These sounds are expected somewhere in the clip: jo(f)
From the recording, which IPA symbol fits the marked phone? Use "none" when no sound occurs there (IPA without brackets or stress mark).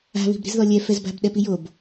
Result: b